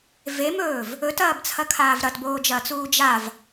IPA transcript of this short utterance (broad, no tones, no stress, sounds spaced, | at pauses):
v e m ɵː v | ɵ t ɐː b t͡sʰ ɐ kʰ aː v ɾ ɐ t b oː d͡ʒ ɐː t͡s uː d͡ʒ a v